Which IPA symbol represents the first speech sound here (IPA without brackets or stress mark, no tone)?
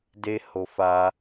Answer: d